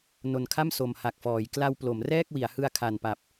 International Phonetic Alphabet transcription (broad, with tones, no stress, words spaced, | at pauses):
no˨˩nkʰa˥˩m so˨˩mha˨˩k̚fɔː˩˦j kla˧w plo˩˦mrɛː˥˩k̚wi˩˦a̯ hɯ˧a̯ kʰa˨˩npa˨˩p̚